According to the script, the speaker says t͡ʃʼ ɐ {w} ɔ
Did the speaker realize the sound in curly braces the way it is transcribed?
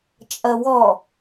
yes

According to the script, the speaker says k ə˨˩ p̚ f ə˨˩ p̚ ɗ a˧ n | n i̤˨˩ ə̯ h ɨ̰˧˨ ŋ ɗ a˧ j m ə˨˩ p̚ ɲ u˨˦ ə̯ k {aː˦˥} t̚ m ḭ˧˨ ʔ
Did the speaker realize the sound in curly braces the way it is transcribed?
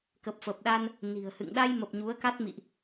no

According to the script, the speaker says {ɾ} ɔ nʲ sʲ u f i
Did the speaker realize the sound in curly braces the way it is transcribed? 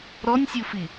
yes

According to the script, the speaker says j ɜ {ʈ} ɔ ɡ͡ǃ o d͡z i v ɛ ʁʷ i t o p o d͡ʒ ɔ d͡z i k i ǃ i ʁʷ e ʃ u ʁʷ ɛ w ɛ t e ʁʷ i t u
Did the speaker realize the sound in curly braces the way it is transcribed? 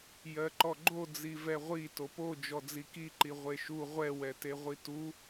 no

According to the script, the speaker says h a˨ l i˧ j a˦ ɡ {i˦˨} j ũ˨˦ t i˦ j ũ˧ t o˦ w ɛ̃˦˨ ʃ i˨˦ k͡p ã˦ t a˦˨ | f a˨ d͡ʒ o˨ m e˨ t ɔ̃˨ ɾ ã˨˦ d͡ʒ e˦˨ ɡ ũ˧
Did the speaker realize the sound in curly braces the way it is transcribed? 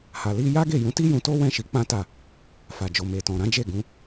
no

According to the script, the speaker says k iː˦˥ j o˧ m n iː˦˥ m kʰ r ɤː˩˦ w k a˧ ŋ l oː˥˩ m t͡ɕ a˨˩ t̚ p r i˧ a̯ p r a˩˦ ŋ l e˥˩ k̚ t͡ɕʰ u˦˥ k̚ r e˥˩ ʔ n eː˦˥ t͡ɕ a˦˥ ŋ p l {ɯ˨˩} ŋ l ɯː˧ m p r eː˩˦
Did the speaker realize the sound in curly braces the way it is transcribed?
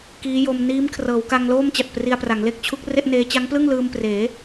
no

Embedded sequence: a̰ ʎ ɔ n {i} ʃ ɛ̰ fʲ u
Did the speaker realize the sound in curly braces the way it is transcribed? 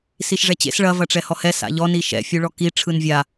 yes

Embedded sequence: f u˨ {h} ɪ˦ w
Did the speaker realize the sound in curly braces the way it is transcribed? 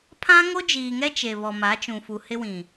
yes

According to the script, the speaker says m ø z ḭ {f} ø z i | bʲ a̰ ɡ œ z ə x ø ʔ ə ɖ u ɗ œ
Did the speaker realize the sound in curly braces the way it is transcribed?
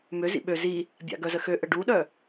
no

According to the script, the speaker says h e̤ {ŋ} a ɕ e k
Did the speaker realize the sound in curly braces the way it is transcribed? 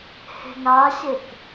yes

